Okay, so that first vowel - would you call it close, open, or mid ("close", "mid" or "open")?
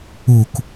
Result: close